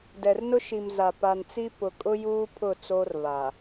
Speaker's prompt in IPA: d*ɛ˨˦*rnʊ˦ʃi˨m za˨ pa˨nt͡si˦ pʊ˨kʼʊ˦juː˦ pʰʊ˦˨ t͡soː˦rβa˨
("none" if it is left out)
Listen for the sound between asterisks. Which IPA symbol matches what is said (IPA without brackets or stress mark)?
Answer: ɛ˨